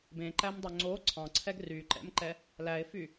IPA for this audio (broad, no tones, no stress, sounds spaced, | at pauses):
b ẽ ǃ æ m dˤ o ŋ͡ǀ o ǀʰ ɑ̃ ǀʰ ɛ ɡ r y ǃ ɛ̰ m ǃ ɛ | l æ ɪ̯ f y